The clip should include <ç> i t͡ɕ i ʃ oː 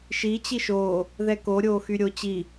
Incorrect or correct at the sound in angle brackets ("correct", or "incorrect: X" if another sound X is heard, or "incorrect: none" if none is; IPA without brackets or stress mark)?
incorrect: ʃ